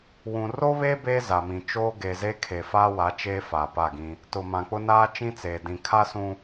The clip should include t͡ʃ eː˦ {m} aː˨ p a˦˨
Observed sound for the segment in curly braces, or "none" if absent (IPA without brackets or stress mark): f